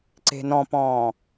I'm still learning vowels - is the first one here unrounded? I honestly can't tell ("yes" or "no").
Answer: yes